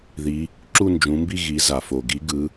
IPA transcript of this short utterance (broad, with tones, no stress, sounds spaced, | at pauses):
ð i˨˦ | ǁ u˥˧ n d͡ʒ ũ˨˦ m b i˥˧ ɣ i˨˦ z a˩ f o˩ ɡ i˨˦ ɡ ɯ˨˦